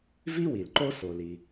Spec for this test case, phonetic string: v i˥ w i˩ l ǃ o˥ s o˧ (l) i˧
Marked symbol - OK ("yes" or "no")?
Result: yes